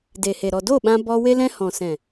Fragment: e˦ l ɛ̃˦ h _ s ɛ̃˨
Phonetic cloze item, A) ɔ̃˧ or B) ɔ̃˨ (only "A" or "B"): B